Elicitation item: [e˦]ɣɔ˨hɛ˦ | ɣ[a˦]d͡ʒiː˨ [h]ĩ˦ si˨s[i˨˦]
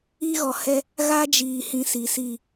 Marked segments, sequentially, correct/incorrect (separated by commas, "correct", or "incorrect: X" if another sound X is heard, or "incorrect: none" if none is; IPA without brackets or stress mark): incorrect: i˦, correct, correct, incorrect: i˦˨